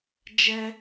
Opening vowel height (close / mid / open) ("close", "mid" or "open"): mid